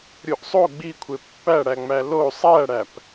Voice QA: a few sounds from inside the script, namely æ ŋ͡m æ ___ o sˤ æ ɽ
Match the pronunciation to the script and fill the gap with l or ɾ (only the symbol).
l